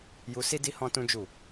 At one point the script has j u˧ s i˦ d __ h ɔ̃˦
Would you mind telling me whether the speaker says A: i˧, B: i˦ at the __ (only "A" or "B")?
B